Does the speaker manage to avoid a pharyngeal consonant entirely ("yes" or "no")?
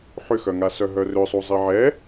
no